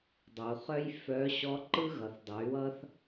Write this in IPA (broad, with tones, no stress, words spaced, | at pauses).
dˤo˩u̯χœ˥j fœ˧˥ ɕɔ˧˥ǃɯ˥ ɣʌ˩θdˤʌ˩˧y̯wʌ˥θ